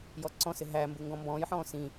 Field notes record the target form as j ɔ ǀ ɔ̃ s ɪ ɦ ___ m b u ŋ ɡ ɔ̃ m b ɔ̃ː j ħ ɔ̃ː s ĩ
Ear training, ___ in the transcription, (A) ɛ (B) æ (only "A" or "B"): B